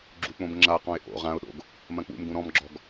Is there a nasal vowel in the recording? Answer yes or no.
yes